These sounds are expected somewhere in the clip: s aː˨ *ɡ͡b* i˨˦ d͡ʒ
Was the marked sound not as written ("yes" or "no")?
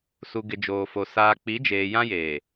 yes